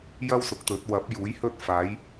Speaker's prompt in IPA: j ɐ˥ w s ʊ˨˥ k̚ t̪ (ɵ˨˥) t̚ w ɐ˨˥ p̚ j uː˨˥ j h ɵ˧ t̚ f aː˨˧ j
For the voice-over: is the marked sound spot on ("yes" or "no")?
yes